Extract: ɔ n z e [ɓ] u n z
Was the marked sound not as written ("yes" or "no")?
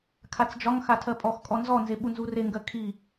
no